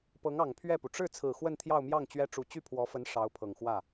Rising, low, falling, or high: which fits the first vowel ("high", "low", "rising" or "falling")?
rising